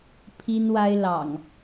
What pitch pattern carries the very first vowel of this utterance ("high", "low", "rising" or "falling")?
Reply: high